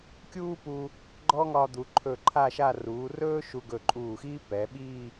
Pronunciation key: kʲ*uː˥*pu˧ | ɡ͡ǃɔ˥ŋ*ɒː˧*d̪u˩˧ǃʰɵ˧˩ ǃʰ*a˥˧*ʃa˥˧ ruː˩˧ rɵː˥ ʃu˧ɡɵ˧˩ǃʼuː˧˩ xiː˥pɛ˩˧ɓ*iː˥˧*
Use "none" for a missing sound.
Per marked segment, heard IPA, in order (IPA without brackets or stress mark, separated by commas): uː˥, ɒ˧, a˥˧, iː˥˧